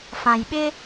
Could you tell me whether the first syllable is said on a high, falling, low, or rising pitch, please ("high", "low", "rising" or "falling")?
low